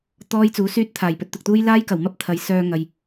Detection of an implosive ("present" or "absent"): absent